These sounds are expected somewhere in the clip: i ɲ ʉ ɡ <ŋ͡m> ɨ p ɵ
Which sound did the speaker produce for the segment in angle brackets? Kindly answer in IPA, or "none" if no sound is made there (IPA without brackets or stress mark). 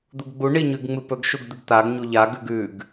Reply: ŋ͡m